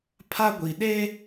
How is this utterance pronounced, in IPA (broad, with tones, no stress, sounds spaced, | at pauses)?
pʰ a˦ ɡʷ i˨ ɗ e˦